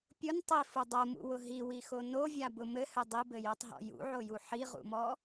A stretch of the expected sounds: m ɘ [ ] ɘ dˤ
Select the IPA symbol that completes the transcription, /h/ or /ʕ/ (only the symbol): h